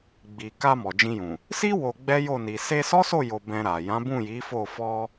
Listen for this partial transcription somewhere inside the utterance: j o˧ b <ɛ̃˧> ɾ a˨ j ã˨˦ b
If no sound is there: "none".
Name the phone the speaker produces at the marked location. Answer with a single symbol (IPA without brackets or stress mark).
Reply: ɛ̃˧